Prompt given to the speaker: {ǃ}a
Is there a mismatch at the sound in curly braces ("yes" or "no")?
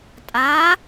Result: yes